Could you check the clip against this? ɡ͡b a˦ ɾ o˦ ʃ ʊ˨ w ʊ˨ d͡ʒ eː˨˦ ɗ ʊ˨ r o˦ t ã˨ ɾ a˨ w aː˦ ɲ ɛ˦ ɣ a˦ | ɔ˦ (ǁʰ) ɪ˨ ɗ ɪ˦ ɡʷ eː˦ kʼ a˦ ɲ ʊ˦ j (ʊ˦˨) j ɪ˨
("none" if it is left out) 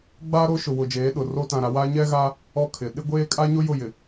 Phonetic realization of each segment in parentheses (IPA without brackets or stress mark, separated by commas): kʰ, ʊ˦˨